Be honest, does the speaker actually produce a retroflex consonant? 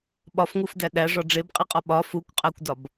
yes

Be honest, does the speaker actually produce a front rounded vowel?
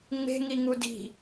no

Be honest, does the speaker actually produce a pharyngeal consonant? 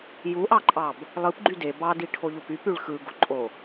no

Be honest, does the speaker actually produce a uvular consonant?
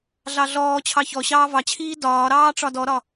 no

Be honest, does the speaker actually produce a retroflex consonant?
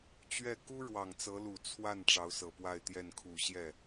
yes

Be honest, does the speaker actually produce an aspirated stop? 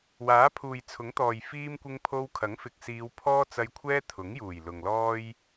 yes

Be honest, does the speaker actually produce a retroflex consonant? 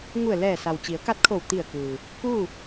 no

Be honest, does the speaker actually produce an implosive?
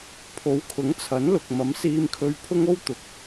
no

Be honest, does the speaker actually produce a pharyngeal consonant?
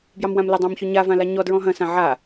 yes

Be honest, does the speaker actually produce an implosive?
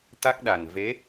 yes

